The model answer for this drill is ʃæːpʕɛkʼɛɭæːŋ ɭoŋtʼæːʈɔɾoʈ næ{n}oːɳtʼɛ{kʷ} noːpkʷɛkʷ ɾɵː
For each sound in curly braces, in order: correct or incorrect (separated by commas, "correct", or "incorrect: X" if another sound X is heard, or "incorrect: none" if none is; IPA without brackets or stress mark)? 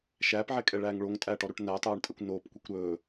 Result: incorrect: tˤ, correct